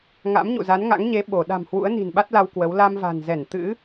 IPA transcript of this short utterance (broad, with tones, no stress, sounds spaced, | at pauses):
ŋ a̰˧˥ m ɲ ṵ˧˨ z a˨˦ n ŋ a̰˧˥ ŋ ɲ e˨˦ ɓ o˧˩ ɗ a̤˨˩ m h w ṵ˧˥ ə̯ n i̤˨˩ n ɓ a˦˥ t̚ l a˧ w k w ə˨˦ w l a˧ m v a̤˨˩ n z ɛ˧˩ n t̪ ɨ̰˧˥